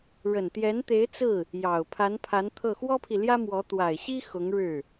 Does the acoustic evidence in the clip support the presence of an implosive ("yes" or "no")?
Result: no